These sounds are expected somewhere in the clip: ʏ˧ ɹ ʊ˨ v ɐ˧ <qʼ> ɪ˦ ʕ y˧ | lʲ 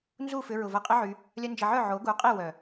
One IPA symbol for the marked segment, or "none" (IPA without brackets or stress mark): qʼ